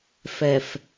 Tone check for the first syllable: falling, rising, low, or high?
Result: low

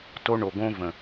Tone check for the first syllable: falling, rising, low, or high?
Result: high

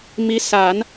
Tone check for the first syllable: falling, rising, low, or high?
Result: rising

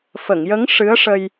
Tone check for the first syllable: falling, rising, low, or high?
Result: low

